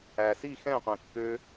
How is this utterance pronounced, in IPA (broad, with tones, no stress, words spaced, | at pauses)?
æ˨si˦˨xɛ̃˦˨qʷẽ˨ kːø˧